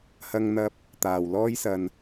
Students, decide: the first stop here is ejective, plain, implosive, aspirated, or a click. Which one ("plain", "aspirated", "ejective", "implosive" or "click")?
plain